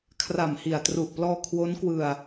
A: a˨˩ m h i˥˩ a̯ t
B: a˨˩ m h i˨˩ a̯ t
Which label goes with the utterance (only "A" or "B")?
B